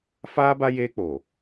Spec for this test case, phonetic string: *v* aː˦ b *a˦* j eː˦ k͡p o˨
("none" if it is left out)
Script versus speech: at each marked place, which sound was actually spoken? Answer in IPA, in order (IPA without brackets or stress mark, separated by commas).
f, a˦